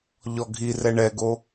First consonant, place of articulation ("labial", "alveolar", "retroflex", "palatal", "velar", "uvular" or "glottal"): palatal